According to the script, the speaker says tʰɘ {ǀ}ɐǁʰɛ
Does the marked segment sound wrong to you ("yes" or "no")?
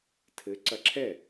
no